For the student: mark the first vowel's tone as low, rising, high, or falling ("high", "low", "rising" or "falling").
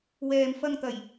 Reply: low